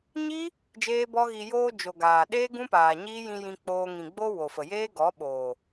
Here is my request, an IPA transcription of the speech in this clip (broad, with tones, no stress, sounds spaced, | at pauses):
ɲ i˦ | d͡ʒ eː˦ b ɔ˦ ɣ i˧ j oː˧ d͡ʒ o˨ ɡ aː˨ ɗ eː˦ ɡ ũ˦ p aː˨ ɲ iː˦ j ĩ˧ j ĩ˧ k͡p oː˧ ŋ ĩ˨ ɡ͡b o˧ w o˨ f ə˨ j eː˦ ɡ ɔ˨˦ ɓ oː˨